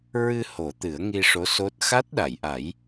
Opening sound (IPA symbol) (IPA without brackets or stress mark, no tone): ɹ